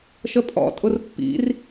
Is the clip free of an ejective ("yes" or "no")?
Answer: no